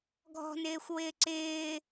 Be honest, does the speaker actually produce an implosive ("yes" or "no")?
no